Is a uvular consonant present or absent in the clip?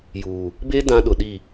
absent